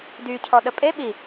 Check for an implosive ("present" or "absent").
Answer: present